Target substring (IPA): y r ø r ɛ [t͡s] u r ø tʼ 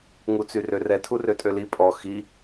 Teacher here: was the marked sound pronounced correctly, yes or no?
no